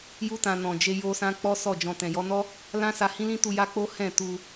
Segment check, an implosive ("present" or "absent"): absent